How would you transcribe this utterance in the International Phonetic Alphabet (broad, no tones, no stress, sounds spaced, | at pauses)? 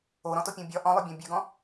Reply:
o ɾ ɔ̃ t o pʲ õ bʲ ɒ ʔ ɔ̃ lˠ ʉ bʲ ɔ̃ bʲ ʉ ɡ ɔ̃